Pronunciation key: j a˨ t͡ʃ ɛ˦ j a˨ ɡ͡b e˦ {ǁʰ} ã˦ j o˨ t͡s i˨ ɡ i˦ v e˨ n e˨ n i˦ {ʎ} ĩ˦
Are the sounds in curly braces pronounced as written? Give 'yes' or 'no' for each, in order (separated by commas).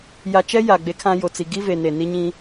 no, no